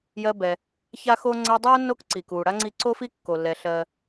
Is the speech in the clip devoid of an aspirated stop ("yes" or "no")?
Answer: yes